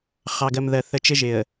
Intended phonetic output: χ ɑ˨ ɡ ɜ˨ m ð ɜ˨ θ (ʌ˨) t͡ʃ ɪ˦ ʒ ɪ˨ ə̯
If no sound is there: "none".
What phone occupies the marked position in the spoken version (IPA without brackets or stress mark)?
ə˨